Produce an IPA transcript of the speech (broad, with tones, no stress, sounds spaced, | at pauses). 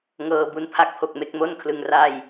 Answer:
ŋ ɤː˧ b u˧ n pʰ a˥˩ k̚ pʰ o˨˩ k̚ m e˦˥ k̚ m o˥˩ n kʰ l ɯ˧ ŋ r a˥˩ j